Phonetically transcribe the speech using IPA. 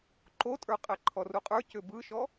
ǃ o tʼ ə˞ qʼ æ ǃʰ ɔ r u qʼ ə˞ c ʏ b ɯ ʃ ɔ

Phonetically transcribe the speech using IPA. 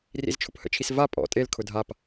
r ḭ z t͡ʃʰ ʊ p h ə̰ t͡ʃʰ i s v a pʼ ɔ̰ tʼ e l kʰ ʊ dʱ a p

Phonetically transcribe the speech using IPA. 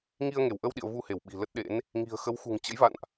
ŋ i˧ ə̯ ŋ e˧˩ w ʔ ə˧ w ɗ ḭ˧˨ ə̯ v u˧ h e˧˩ w ɓ i̤˨˩ l ə˦˥ t̚ ɗ ḛ˧˥ n | ŋ i̤˨˩ ə̯ x ə˨˦ w x ṳ˨˩ ŋ t͡ɕ ə̰˧˥ j v a̰˧˨ n ʔ

